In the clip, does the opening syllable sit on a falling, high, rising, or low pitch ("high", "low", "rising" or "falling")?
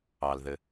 low